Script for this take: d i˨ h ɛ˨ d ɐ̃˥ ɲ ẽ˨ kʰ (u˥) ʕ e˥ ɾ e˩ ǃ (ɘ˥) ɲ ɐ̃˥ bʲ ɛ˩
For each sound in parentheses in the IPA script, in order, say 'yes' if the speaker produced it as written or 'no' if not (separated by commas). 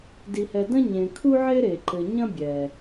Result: yes, no